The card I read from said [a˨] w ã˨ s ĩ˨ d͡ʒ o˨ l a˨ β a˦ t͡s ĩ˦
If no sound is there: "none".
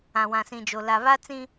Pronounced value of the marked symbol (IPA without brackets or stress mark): ã˨